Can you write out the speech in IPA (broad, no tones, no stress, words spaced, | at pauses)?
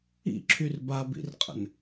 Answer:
ḭǁʰyr babḭrqʼə̰n